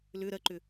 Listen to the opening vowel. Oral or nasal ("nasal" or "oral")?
oral